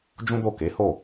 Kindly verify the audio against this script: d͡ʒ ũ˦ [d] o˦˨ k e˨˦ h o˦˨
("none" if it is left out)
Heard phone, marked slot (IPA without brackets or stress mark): d